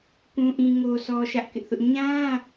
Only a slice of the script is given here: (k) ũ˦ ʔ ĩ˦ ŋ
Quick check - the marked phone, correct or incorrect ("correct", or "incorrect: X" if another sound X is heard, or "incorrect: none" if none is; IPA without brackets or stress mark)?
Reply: correct